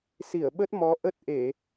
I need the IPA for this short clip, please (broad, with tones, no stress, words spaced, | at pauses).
si˧˩ə̯ɓə˦˥t̚ mɔ˨˦ʔə˦˥t̚ ʔe˧˩˨